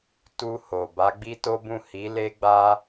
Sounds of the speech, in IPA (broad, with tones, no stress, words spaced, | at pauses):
tu˧ ho˨ ba˨˦ɡ͡bi˦to˦bũ˦˨ hi˨˦le˦ɡ͡ba˦